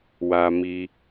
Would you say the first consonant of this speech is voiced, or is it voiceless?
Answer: voiced